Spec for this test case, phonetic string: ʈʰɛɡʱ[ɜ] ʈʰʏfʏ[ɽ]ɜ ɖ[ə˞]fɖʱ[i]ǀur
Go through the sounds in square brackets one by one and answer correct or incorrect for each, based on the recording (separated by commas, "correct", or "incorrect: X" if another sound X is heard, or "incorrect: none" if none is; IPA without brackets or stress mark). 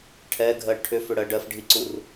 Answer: correct, correct, incorrect: ɜ, correct